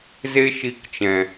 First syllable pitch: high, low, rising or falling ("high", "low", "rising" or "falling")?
high